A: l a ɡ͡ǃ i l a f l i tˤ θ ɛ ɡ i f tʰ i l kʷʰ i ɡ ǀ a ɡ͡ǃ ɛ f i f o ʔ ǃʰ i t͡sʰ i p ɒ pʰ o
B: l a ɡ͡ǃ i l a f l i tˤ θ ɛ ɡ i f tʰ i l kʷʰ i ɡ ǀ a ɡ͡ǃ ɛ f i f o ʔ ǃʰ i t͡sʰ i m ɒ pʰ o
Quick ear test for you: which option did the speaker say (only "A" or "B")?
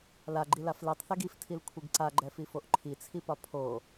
A